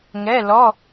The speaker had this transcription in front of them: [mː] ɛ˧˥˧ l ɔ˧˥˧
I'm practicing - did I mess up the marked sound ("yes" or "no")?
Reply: yes